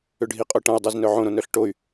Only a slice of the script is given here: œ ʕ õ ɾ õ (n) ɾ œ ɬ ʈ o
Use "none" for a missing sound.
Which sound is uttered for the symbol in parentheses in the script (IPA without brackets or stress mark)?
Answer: n